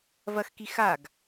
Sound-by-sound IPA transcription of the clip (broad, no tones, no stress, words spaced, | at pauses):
vɐxki xaɡ